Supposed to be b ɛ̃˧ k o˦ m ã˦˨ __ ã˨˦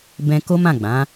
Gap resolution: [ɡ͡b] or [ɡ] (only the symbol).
ɡ͡b